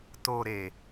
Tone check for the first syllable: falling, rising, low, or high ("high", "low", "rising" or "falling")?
low